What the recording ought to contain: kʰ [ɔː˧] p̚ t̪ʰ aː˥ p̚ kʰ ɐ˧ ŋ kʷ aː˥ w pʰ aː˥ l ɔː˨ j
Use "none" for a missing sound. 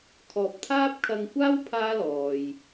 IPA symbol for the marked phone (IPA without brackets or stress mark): ɔː˨